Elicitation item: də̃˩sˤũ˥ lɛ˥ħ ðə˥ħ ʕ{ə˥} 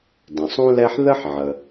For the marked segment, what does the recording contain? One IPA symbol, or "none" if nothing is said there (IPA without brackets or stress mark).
ə˩